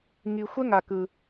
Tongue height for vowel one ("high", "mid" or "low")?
high